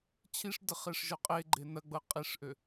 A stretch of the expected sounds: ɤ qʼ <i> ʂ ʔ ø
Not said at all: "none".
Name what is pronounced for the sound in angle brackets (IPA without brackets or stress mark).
i